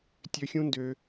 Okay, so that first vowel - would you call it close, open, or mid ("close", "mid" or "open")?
mid